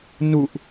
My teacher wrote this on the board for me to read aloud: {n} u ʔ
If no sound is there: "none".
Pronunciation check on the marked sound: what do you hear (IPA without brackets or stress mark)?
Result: n